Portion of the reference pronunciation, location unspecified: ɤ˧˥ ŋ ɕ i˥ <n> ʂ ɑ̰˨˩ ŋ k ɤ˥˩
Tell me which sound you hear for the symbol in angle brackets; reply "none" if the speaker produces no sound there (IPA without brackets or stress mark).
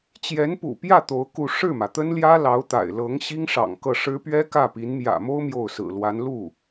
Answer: ŋ